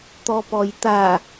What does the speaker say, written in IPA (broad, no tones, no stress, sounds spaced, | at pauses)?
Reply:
t̪ ɔ p ɔ j t̪ a